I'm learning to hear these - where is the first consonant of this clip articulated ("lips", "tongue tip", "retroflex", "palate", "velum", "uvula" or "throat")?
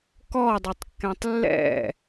velum